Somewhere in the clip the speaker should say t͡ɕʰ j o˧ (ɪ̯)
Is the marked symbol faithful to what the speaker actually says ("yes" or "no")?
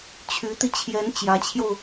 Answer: no